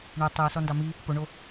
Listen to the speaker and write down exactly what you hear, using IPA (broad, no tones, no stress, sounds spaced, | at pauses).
ɳ y tˤ y ʊ̯ s ɔ n d ɑ m i | p o ɳ o